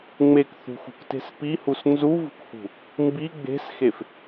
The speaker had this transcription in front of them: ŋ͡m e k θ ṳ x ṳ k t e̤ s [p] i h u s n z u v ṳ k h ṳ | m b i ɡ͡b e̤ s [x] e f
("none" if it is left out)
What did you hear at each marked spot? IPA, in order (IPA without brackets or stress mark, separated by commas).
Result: p, x